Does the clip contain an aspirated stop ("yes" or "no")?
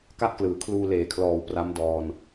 yes